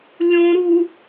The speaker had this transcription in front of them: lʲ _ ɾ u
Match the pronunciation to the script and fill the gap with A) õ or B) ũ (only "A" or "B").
A